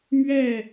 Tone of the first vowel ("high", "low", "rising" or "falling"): falling